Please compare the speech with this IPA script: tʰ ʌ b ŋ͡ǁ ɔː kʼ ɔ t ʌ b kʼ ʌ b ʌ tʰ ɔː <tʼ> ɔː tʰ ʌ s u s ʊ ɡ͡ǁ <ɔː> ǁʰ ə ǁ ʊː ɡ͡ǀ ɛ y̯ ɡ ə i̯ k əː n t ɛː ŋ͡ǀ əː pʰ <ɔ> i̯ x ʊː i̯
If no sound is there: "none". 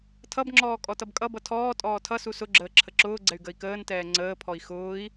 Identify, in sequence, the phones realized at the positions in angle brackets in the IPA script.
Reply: tʼ, əː, ɔ

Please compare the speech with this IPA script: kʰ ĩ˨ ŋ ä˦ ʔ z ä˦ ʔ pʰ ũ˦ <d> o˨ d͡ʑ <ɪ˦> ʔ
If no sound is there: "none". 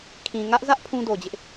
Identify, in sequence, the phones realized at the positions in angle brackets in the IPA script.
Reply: d, ɪ˦

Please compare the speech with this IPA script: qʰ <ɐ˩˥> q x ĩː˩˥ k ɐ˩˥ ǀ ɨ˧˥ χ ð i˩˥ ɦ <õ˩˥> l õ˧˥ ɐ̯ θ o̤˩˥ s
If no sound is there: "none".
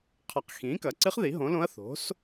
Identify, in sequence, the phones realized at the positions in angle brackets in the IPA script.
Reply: ɐ˩˥, õ˩˥

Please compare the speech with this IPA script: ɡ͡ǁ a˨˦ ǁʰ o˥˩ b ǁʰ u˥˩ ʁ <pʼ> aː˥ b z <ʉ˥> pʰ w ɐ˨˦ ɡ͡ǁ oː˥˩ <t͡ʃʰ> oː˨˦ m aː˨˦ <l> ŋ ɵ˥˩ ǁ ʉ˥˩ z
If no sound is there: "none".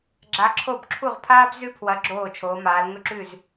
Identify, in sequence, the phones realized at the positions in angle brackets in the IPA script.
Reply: pʰ, ʉ˥, t͡ʃʰ, l

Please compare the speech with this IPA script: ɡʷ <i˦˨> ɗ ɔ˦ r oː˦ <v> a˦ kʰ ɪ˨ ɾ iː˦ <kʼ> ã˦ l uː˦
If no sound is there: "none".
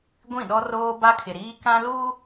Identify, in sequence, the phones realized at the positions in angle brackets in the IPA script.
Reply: ĩ˦˨, b, k

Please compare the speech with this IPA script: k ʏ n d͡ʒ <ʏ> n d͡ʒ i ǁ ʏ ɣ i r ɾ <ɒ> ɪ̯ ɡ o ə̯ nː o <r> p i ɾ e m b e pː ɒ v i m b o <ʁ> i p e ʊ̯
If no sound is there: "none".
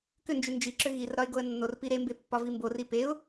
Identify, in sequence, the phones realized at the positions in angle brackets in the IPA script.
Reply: ʏ, ɒ, r, r

